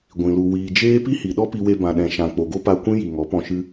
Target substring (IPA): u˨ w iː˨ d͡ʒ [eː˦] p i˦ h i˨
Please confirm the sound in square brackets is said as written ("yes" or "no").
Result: yes